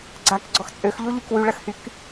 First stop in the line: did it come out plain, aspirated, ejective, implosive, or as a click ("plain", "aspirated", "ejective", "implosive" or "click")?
click